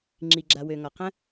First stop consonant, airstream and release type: click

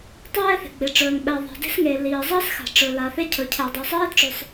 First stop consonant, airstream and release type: plain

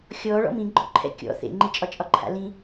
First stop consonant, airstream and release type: click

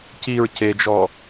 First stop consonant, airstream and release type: plain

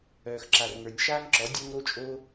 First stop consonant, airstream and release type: click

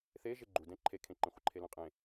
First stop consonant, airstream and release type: click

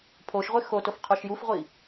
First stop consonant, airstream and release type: aspirated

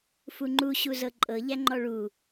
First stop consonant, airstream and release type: click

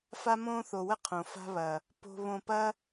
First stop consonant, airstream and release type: aspirated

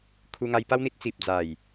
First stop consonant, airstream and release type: aspirated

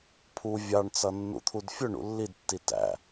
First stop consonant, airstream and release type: aspirated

